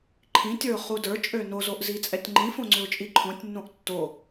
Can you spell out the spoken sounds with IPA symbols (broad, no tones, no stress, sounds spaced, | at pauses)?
ǃʰ ĩ tʲ ə˞ ʊ̯ χ u d ə˞ t͡ʃʼ ø n o z o ʔ z i t͡sʼ ɛ tʲ ŋ͡ǃ ĩ f õ ŋ͡ǀ ʏ ʊ̯ t͡ʃʼ i ǃʰ õ tʲ nː õ ʔ tː o